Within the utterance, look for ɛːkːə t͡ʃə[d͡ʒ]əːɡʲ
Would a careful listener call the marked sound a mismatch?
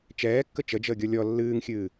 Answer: no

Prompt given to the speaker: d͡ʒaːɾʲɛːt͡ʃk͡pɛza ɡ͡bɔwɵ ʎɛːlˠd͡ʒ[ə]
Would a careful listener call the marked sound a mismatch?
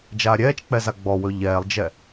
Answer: yes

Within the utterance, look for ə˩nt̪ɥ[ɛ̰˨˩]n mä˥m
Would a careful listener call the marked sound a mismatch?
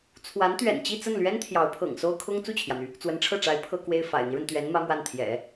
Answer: yes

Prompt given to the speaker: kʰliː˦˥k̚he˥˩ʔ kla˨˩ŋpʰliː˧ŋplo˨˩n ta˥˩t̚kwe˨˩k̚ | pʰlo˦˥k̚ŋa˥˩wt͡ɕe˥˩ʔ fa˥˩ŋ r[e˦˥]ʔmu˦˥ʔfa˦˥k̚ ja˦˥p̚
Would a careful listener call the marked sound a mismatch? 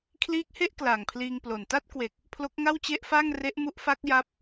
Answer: no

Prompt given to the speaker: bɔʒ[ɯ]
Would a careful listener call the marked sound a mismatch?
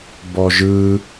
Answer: no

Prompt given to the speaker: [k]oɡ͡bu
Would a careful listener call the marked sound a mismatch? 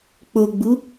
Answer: yes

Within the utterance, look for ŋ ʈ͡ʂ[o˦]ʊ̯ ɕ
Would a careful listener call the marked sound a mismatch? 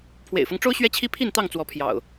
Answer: no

